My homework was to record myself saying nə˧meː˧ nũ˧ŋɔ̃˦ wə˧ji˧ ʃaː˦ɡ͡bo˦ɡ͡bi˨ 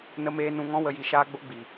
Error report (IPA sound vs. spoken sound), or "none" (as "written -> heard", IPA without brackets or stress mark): none